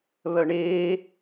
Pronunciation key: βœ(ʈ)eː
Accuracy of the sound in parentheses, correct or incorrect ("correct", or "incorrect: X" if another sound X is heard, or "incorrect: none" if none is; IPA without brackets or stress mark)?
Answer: incorrect: ɳ